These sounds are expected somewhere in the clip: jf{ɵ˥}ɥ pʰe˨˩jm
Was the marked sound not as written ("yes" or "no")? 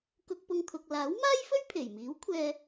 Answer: no